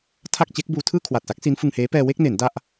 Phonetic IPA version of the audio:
tʰ a˥˩ k̚ t͡ɕ e˦˥ k̚ b uː˧ tʰ ɯː˥˩ kʰ w a˨˩ t̚ s a˦˥ k̚ s i˦˥ n f ɯ˧ ŋ h eː˦˥ p ɛː˧ w e˥˩ k̚ n e˩˦ n d a˥˩ ʔ

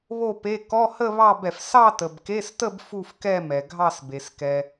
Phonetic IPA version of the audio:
β o˥˧ p e˧˥˧ k ɔ˧˥˧ h ə˥˧ β ɑ˥˧ b ɛ˨ f s ɑ˥˧ t ə˨ b k e˧˥˧ s t ə˥˧ b f u˥˧ f k ɛ˥˧ m ɛ˨ ɡʱ ɑ˥˧ s b e˨ s k ɛ˨

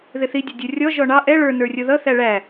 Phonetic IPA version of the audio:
ð ɪ θ i dʲ ʌ dʲ ʊ rʲ ɔ ʒ ɔ ɳ ɑ ʔ ɛ ɭ ə˞ n ə˞ rʲ ʊ ð ʌ θ æ ɭ æ

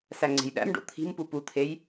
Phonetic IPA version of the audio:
s æ ŋ͡ǀ e̤ j ɗ æ̰ m ɖ o̰ t̪ʰ i̤ m p u p u t̪ʰ e j

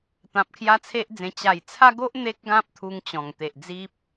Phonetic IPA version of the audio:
t̪ ã˨ p̚ kʰ j a˦ t͡sʰ e˦ ʔ d͡z ẽ˧ t͡ɕ a˨˩ j t͡sʰ a˦ ɡ o˦ ʔ n̪ e˦ k̚ ɡ ã˦ p̚ t̪ʰ u˧ ŋ t͡ɕ ɔ̃˨˩ ŋ t̪ e˨ ʔ d͡z i˦ p̚

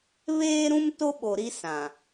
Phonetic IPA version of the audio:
β eː˦ ɾ ũ˦ m t o˦ ɓ o˨ ɾ i˦ s ã˨

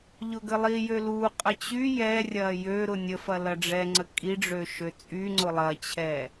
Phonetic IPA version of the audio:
ʎ ʊ ɡ ə lˠ i j ø l u qʼ ə t͡ɕ y j ɛ rʲ ɐ j ø ɾ ʊ nʲ ə f ɐ l ɐ ɖ͡ʐ ɛ ŋ͡ǀ ə kʼ i ɖ͡ʐ ø ʃ ø t͡sʼ y ŋ͡ǀ ʊ lˠ ɐ t͡ɕʰ ɛ

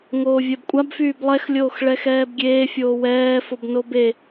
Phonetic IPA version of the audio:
ŋ oː vʲ ɛ b kʷʼ a b f yː b lˠ ɛ x lʲ oː x ɭ ɛ x ɛː b ɡʲ eː fʲ oː w ɛː f o b n o b e

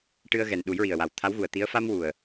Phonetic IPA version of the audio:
ʈ ɨ˧ ə̯ ɣ ɛ˨˩ n ɗ u˨˩˦ j ɹ i˨˩ ə̯ w a˨˩ w t̪ʰ a˧˥ w ɣ u˨˩ ə̯ t̪ i˧˥ ə̯ f a˧ m w u˨˩ ə̯

